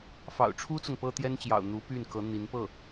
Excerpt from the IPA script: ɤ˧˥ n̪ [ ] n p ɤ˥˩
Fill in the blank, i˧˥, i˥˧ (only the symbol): i˧˥